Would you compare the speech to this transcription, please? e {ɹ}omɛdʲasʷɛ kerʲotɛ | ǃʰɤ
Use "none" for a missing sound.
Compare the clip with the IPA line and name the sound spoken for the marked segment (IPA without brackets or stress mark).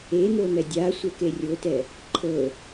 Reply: n̪